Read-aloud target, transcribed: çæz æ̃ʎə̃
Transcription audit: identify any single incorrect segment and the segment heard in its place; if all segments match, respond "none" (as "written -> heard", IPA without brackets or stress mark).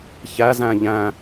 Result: ə̃ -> æ̃